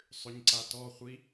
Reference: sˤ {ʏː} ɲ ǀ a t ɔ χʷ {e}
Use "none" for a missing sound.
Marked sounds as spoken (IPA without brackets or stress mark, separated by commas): ʏ, i